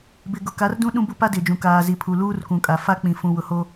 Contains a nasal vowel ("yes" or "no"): yes